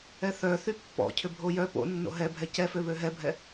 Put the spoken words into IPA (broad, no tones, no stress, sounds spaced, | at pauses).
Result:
ɛ θ œ θ y pː ɔ̰ cʰ ʏ bʱ o j œ p o̰ nː o̰ ɦ ɛ bʱ ɛ c ɛ f ø β ø ɦ ɛ bʱ ɛ